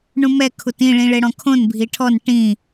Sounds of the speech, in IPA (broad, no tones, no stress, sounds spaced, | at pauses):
ɳ ũ m ɛ kʰ u t ĩ ɭ ĩ ɭ e ɽ ɔ̃ kʰ õ n bʱ i ʈʰ ɔ n ʈ ĩ